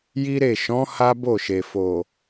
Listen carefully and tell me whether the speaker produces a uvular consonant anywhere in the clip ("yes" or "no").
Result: no